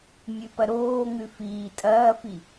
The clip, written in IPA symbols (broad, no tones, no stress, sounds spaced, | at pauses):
mʲ ʉ p ɐ ɾ oː ŋ ʉ f iː tʼ ɐː f i